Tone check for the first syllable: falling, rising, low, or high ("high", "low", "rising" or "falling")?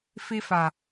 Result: high